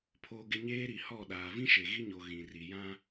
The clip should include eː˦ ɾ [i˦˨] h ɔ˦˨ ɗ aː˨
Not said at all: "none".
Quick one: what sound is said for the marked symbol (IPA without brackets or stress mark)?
i˨